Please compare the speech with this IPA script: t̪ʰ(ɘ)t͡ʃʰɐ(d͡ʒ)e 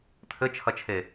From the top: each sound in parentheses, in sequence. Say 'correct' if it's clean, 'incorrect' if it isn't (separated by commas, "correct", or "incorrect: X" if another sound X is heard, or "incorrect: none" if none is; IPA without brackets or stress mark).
correct, incorrect: t͡ʃʰ